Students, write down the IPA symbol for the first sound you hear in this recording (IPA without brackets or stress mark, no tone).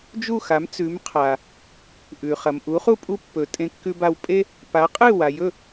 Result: d͡ʒ